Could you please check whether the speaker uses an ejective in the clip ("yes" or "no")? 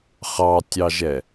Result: no